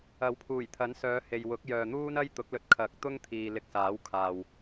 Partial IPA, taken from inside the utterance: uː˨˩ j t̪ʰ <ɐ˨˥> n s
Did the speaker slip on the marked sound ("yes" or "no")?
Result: no